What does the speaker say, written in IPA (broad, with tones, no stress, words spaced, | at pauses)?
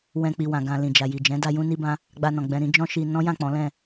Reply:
wɛ̃˧k͡pi˨wã˨ ɡã˨ lĩ˨d͡ʒa˨ ji˨d͡ʒɛ̃˨˦da˧ jũ˧ni˧bã˧ | ɡ͡ba˧nɔ̃˨ɡ͡bɛ̃˧ɾĩ˦ d͡ʒɔ̃˦ʃi˧ nɔ̃˦jã˦˨k͡pɔ̃˨˦lɛ̃˦˨